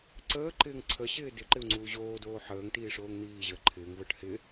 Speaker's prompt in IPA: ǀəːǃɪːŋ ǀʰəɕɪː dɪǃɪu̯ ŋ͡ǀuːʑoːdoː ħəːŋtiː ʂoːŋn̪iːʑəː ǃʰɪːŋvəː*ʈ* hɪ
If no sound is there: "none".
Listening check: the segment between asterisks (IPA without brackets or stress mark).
ʈ